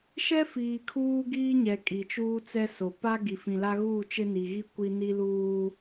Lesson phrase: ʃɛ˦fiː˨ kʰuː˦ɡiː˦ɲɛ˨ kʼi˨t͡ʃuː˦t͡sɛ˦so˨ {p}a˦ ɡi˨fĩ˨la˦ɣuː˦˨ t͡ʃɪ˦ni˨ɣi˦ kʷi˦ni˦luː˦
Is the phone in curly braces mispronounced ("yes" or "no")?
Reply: no